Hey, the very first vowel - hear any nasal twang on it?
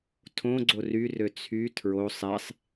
yes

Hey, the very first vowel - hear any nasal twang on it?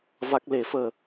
no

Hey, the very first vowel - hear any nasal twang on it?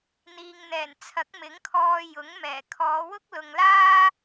no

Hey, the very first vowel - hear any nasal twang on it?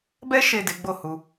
no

